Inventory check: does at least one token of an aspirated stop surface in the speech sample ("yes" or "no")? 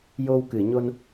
no